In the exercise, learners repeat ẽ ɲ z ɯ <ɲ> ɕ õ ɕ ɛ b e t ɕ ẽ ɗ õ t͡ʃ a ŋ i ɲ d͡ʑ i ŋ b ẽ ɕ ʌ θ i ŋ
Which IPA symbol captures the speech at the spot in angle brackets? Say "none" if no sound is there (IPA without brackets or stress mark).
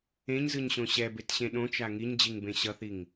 ɲ